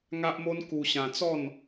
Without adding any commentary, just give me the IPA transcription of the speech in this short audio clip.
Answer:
ŋ a˦ ʔ m o˦ n k u˧ ɕ ã˧ t͡s ɔ˥˧ n

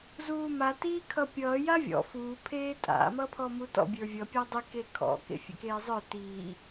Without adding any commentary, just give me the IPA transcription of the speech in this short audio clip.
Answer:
z uː m a t iː kʰ ʌ pʲ ʌː j a vʲ ɔ̰ f uː pʰ eː tʼ a̰ m ʌː pʰ ɔ m u t ɔ̰ bʲ ə˞ vʲ ʌ pʲ a dˤ i k e kʰ ɔ̰ k ḛ fʲ ḛ k eː zˤ ə˞ t iː

